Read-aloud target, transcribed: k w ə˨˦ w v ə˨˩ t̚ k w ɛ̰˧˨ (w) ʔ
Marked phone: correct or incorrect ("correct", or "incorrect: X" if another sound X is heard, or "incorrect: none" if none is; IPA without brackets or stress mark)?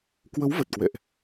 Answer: incorrect: none